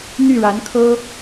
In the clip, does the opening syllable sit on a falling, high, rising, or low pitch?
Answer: falling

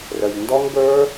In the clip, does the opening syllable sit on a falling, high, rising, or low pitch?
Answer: low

